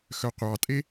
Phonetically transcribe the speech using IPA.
xœqʷɑtʼe

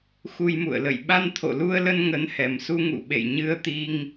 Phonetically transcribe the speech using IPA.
xu˧jmṵ˧˨ə̯lə̰˧˨j ɓa˧nt̪ʰo̰˧˨lu˧ə̯lə˧n ŋə˨˦nhɛ˨˩msu˧ ŋṵ˧˨ɓḛ˧˨j ɲɨ˧ə̯t̪i˧ŋ

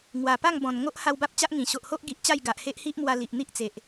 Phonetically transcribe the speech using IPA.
ŋwa˨˩pa˥˧ŋ bɔ̃˨˩n ŋo˦ʔha˧w ba˦p̚t͡ɕa˦ʔŋĩ˨˩ ɕo˨ʔho˦ʔɡi˨ʔ t͡ɕa˥˧jɡa˨ʔ he˦ʔhi˦ʔmwa˧ li˨ʔn̪i˦ʔt͡se˨ʔ

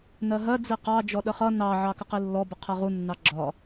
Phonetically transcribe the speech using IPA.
nɜɦɜ d͡ziqɑ d͡ʒɔɗəχʌ nɑ ʕɑkəqilːɔ bəqʰɜʁu nːɑɡ͡ǁɒ

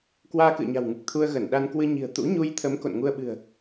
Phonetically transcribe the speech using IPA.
kwaː˧kɨ̰˧˨ə̯ɲa̤˨˩wŋɨ˨˩k̚ t̪ʰu˧ə̯ɣə˧˩n ɗa˧nkwɨ˧ɲi̤˨˩ə̯ t̪ṵ˧˥ɲu˧jt̪ʰə˨˦m ko̰˧˨nŋu˧ə̯ɓɨ̤˨˩ə̯

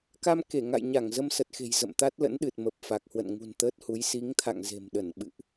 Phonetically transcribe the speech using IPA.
ka˧mke˧˩ŋa̰˧˨jɲa˧˩ŋ zə˧msə˨˩t̚xe̤˨˩j zə̰˧˨mt̪a˦˥t̚lə̰˧˥nɗɨ˨˩t̚ mə˨˩p̚fa˨˩k̚ hwə̰˧˨nŋṳ˨˩n t̪əː˦˥t̚hu˨˦j si˨˦ŋt̪ʰa̰˧˨ŋ ze̤˨˩mɗə˧˩n ɓɨ̰˧˨ʔ

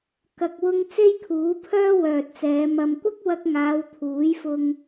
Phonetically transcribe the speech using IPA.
kɐ˨k̚wʊ˧ŋ t͡se˥jkʰuː˨˥pʰœː˥ wœː˨t̚t͡sɛː˨˧ mɐ˨mkʷɐ˥k̚wɐ˧k̚ŋaː˨˧w t̪ʰuː˨˥jfʊ˧ŋ

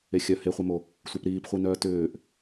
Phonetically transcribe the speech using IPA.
exʲœ heχʷemo | sʷœpɾiːpχʷinœː tʏːʔ

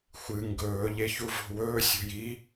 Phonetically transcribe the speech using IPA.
xʷɨ ŋɡɵː ʎeçuvo̤wɵː sʲo̤ji

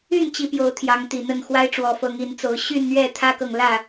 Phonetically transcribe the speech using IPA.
y˥˨nt͡ɕi˨˦ pjo˨˦ʊ̯t̪ʰjɑ˨˦ŋt̪i˨˩n̪ə˥˨n xwa˦ɪ̯ʈ͡ʂwɔ˨˩ fɤ˨˦ŋi˨˦nt͡so˨˦ʊ̯ ɕy˥˨nn̪ɥɛ˥˨ t̪ʰä˦kɤ˨ŋ lä˥˨

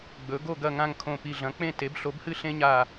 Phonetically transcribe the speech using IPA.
ɡ͡bɵ˩˥ ɡo˥˨ ɡɐ˥˨ŋã˥˨ŋkʰõ˧˩ pi˧˩ɮɐ̃˩˥k͡pẽ˥˨te˩˥b ɬo˩˥bhɨ˥˨ɬẽ˦ɲa˧˩

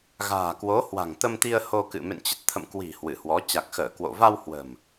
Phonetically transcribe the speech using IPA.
ɣa̤ː˨˩kwo˨˦hwa̤˨˩ŋ t̪ə˧mt̪i˧ə̯ ho˧kɨ̰˧˨ mḛ˧˨nt͡ɕə˨˩t̚t̪ʰə̰˧˨mkwi̤˨˩ hwɨ˧˩hwɔ˨˦ t͡ɕa˨˩k̚xəː˧˩kwo̰˧˨ va˧w hwə̤˨˩m

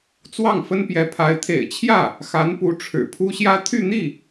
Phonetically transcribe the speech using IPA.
t͡swɑ˥˩ŋfə˥npjɛ˧˥pʰa˧˥ɪ̯ t̪ʰḛ˨˩ɪ̯t͡ɕʰjä˥˩ | xa˧˥npu˧˥ ʈ͡ʂʰɻ̩˨˩pʰu˥ɕjä˥ t̪ʰy˥˧n̪i˥˩

